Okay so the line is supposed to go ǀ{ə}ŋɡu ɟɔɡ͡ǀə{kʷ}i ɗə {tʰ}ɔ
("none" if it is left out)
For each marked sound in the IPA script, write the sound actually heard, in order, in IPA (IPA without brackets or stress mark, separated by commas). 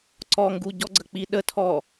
ɔ, k͡p, tʰ